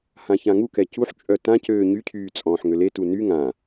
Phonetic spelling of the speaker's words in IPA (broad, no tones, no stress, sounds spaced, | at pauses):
h ã ç ã ŋ u k ɛ c u ħ t͡ʃʼ œ t ã c øː ɲ y cʰ yː t͡sʼ ɔ̃ː ħ ŋ ø l e t u n y ŋ ã